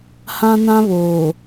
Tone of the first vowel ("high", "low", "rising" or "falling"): high